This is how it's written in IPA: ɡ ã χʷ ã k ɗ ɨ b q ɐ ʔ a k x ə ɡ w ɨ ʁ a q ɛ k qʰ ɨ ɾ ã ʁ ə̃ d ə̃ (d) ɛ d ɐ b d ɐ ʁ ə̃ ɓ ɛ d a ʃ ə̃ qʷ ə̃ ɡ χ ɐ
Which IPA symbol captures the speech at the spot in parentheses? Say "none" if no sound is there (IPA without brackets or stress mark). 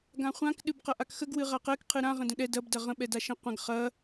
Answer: ɗ